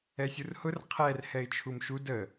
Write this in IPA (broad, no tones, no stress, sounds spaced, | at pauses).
ɛ sʲ u r h ʊ r qʰ ɛ r h ɛ ɪ̯ t͡ʃʰ u m ʃ u d ə